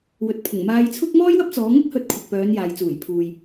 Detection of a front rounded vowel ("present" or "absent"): present